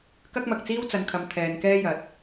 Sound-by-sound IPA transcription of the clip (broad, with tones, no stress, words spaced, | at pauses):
kɐ˥k̚mɐ˨k̚t͡siː˥w t͡sɐ˨˧nkʰɐ˨˧m t̪ʰɛː˨nkɛː˥jɐ˨t̚